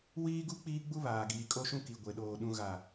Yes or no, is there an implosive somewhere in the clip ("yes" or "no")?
yes